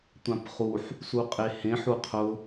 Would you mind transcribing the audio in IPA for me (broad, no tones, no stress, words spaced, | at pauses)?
tʷãpχuħ | suqʼehẽ ħuqʰʊ